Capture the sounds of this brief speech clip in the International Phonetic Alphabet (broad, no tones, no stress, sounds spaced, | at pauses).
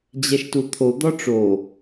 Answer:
d͡ʑ ɛ ʃ t u t̪ʰ o d̪ ɒ ʈ͡ʂ o